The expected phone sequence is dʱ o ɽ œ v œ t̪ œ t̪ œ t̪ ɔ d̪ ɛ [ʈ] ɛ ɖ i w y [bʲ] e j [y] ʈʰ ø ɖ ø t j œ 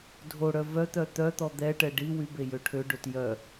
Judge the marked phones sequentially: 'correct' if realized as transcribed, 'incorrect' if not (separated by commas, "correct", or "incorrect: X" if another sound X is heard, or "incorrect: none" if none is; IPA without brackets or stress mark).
correct, incorrect: b, incorrect: ø